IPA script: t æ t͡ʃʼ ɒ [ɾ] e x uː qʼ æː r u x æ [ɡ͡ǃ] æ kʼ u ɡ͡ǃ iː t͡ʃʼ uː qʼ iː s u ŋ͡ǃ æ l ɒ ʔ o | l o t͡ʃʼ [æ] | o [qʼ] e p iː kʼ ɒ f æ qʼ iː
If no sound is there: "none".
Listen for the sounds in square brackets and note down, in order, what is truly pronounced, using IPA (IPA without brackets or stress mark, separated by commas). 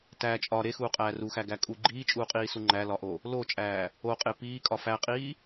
ɾ, ɡ, æː, qʼ